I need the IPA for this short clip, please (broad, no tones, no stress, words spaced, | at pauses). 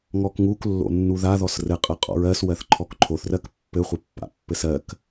ŋɔkŋuk lːo̰nːuða ðɔsrɘ qʼɜqʼɔ̰ɹɜs wɜθǃʰɔkǃʰoθ rɜkpːɘ χʷɘpːa̰pːɘsɜk